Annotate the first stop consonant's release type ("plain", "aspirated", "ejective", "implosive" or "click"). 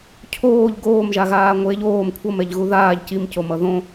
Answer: aspirated